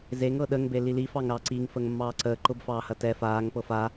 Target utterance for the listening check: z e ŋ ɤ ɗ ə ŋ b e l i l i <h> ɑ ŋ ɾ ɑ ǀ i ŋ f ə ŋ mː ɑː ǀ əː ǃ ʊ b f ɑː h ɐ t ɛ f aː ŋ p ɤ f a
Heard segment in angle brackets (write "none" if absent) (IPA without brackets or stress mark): f